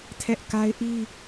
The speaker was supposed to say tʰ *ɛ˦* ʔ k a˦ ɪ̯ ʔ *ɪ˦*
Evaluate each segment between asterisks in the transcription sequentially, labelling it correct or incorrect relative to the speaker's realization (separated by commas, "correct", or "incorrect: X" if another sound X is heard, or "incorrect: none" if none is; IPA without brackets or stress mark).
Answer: correct, incorrect: i˦